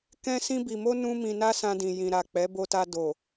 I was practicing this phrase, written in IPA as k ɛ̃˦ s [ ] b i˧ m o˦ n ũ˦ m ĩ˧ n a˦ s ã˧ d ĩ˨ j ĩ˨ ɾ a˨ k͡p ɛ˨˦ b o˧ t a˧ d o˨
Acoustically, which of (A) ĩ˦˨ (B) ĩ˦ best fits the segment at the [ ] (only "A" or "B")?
B